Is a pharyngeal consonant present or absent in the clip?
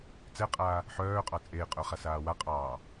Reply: present